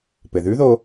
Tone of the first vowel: low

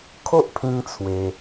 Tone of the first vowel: high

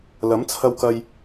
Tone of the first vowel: rising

